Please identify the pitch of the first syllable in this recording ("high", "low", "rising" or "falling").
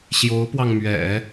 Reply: rising